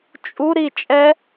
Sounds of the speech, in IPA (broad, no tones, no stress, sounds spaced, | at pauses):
t͡ʃʼ u ɾ i t͡ʃʼ ɛ